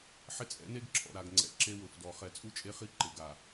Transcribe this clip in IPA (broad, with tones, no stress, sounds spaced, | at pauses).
ħ ɪ˦ t͡sʼ ɛ̰˨˦ n e˦ ɡ ǁʰ ɔ̰˨ ɾ a˨ ɡ ŋ͡ǀ ɛ̰˨ ǁ e˦ w ʊ˨ f d ɔ˨ χ ɛ˨ t͡sʼ u˦ t͡ʃʼ e˦ χ i˦ ǃ ɪ˨ ɡ a˨